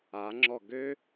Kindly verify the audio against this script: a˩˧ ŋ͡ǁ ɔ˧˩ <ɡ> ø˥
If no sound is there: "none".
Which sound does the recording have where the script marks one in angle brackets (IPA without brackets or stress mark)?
ɡ